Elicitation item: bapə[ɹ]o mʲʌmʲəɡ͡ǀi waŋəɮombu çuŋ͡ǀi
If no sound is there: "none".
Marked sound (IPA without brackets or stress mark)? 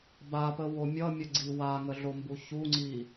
w